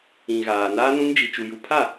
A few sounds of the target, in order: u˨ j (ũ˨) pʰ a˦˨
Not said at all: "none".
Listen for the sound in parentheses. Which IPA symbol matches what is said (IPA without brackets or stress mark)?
u˨